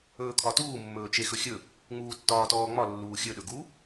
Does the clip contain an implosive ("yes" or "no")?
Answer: yes